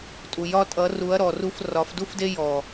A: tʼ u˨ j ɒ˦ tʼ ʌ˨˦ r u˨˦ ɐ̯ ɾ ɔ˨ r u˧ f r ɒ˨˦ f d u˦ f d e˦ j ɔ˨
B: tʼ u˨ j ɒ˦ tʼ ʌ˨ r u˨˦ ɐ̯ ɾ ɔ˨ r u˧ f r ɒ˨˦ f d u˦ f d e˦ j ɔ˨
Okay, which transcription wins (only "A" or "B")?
A